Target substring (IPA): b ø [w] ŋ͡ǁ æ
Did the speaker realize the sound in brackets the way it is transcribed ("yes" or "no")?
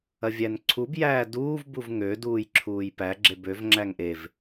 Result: no